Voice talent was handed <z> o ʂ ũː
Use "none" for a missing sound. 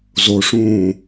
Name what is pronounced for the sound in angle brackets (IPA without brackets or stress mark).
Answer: z